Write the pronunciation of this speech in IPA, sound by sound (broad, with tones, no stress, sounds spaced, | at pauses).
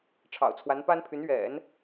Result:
ʈ͡ʂʰ ɑ̰˨˩ ʊ̯ t͡sʰ w a˧˥ n p a˥ n pʰ y˧˥ n ɥ ɛ̰˨˩˦ n